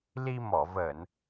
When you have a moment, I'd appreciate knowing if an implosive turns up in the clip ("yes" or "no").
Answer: no